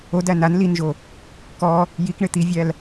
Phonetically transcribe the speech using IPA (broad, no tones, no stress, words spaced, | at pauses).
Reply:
odæ nan linʒo | kɔ | jikɳɪ t̪ivʲæl